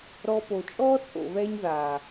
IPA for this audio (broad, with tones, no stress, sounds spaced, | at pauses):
ɾ ɔ˧ p o˨ t͡ʃʼ ɔː˦ t͡sʼ o̰˨ β ɛ˦ ɲ ð aː˨